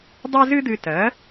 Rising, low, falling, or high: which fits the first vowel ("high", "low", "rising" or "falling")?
high